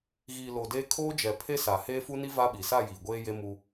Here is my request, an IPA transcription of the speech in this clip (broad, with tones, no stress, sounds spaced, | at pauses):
ɣ iː˨ l o˨ d eː˦ kʰ oː˦ d͡ʒ ɛ˨ pʰ e˦ s a˨ h eː˦ f u˦ n i˦ v a˦ ɓ i˨ s a˦˨ j iː˨ ɡʷ eː˦ j e˦ m u˦